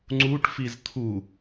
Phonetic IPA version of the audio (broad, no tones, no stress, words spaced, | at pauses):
ŋ͡ǀuʈ fizt̪ʰu